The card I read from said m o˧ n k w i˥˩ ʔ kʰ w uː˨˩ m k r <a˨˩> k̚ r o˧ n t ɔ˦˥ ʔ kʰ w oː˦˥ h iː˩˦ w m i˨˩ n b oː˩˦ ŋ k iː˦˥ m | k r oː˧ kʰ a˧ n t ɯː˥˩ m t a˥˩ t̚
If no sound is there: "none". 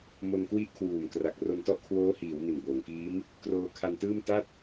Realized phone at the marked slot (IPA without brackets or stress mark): a˨˩